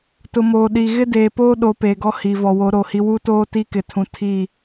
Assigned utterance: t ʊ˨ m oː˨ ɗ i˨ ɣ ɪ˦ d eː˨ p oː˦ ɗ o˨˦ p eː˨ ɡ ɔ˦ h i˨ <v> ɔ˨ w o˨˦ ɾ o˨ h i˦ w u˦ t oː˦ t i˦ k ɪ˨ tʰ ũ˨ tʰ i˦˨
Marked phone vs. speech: correct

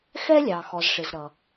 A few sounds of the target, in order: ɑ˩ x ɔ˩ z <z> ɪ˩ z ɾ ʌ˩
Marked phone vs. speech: incorrect: ʂ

